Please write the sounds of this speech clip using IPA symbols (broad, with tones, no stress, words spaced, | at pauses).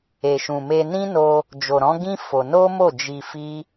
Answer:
e˨ʃũ˨me˧ nĩ˦no˧ | d͡ʒo˨ɾɔ̃˨˦ɡĩ˦ fo˧ no˦mo˦˨ d͡ʒi˧fi˦